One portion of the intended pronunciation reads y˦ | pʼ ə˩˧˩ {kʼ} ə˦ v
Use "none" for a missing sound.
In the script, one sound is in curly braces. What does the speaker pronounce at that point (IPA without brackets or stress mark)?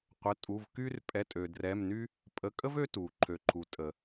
kʼ